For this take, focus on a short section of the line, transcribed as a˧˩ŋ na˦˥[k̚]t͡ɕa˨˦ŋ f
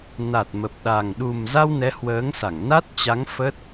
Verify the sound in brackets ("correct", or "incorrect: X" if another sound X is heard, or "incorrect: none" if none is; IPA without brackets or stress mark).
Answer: incorrect: t̚